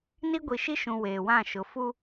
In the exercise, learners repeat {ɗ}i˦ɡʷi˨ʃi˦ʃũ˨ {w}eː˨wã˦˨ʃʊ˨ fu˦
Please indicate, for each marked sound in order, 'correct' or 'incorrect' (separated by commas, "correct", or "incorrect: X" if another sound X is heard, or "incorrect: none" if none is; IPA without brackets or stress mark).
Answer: incorrect: n, correct